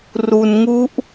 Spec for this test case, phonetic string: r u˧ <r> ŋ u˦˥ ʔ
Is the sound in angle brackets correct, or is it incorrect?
incorrect: n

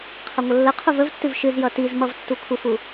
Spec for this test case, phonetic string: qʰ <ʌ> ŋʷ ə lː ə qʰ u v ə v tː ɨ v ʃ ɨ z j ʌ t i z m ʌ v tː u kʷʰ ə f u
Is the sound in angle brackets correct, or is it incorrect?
correct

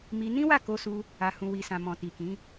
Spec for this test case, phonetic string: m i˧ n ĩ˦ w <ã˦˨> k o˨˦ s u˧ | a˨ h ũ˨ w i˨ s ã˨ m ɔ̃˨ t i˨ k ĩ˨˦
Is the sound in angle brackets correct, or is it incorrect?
incorrect: a˦˨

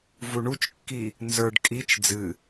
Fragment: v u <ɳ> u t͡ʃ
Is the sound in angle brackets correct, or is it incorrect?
correct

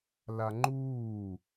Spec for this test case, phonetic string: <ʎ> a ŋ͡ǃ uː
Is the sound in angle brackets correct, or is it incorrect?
incorrect: l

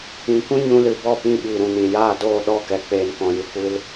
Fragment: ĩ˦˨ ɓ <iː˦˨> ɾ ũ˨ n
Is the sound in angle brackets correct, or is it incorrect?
incorrect: iː˨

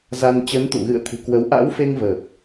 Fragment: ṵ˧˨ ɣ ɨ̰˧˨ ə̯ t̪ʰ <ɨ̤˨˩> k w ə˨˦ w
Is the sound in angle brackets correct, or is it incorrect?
correct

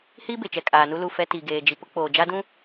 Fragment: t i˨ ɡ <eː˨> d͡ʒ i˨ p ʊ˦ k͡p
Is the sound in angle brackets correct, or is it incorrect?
correct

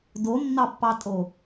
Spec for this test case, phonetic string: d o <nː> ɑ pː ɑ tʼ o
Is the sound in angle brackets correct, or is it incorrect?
correct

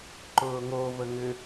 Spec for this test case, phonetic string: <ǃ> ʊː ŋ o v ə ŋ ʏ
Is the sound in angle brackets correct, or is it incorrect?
correct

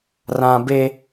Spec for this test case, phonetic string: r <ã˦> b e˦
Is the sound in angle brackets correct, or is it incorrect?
correct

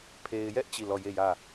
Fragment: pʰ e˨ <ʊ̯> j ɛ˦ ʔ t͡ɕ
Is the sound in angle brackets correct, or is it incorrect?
incorrect: ɪ̯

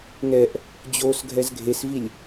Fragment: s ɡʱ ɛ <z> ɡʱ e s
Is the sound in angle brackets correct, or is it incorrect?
correct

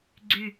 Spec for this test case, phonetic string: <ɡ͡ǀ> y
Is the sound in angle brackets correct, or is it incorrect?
correct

